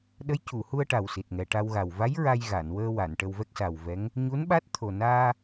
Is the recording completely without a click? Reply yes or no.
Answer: yes